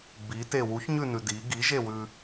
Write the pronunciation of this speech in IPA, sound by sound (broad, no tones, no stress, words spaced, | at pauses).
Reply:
bite wuçɲʉnʉ di ɡiʒewʉ